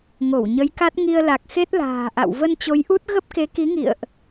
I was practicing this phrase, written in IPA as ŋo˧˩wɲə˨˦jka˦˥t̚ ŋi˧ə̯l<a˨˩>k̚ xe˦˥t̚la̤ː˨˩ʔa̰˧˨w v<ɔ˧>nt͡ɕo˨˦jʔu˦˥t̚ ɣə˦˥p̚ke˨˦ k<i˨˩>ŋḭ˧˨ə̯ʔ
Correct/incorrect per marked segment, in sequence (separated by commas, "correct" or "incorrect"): correct, incorrect, incorrect